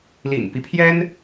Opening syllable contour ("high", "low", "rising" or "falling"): low